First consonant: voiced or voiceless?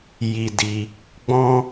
voiced